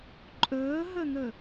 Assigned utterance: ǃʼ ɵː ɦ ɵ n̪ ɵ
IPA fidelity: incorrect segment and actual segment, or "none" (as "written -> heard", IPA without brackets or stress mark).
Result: none